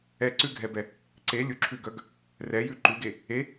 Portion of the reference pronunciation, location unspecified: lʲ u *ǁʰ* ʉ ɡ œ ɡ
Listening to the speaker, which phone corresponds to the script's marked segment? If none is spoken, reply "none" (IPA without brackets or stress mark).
ǁʰ